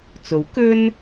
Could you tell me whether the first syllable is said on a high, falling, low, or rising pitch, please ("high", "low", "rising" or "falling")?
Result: rising